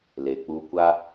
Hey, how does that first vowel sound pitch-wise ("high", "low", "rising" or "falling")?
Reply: low